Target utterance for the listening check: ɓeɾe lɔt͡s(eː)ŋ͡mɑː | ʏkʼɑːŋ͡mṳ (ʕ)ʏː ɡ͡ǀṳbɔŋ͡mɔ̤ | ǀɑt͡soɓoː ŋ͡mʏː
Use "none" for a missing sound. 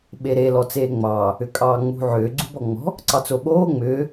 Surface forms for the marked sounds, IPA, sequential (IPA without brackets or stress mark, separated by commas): eː, ʕ